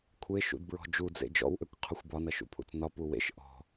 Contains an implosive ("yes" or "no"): no